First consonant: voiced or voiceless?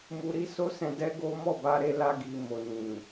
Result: voiced